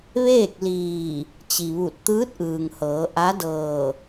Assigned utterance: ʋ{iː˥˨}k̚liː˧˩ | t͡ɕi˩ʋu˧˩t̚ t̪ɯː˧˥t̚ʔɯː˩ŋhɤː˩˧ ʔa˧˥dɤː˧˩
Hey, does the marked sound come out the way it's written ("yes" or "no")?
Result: no